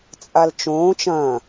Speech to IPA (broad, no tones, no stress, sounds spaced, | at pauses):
t͡sʼ a l t͡ʃ õː t͡ʃ ɐ̃